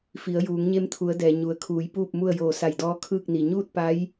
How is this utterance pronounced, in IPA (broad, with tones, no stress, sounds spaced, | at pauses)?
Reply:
f i˩˧ ə̯ j uː˩˧ ŋ ɲ e˧˥ m t̪ʰ u˩˧ ə̯ d ɛː˩ ɲ u˩˧ ə̯ kʰ uː˩˧ j p uː˥˨ p̚ m u˥˨ ə̯ j oː˧˩ s a˧˩ j d ɔː˧˥ kʰ ɯː˥˨ k̚ n i˩ ɲ uː˥˨ t̚ p a˧˥ j